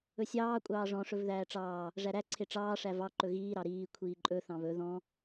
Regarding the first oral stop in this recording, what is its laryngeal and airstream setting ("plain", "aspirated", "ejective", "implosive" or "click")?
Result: ejective